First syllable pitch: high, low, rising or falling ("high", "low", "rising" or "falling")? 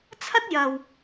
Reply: high